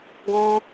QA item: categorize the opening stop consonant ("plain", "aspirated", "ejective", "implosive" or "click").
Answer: plain